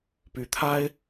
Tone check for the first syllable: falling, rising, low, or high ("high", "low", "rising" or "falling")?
rising